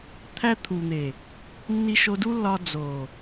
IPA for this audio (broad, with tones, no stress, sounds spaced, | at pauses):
t̪ʰ æ˧ t̪ʰ u˨ n̪ e˨ | nː i˦ ʃ o˧ d u˦ lː ɒ˧ d͡z o˨